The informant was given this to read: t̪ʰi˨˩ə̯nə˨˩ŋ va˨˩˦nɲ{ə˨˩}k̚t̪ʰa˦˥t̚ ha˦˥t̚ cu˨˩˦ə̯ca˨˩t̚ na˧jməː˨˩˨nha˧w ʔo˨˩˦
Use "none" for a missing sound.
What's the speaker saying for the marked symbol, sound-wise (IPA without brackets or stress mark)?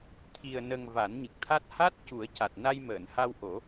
ɨ˨˩